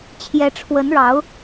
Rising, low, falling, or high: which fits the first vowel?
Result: rising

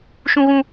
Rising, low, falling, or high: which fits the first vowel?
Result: high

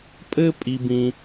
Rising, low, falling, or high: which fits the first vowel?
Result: high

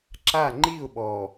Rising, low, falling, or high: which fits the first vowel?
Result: falling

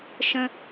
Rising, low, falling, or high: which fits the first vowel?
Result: high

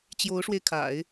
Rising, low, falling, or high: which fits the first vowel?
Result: rising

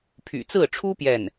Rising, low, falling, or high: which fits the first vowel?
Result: low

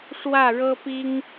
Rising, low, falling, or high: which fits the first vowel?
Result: falling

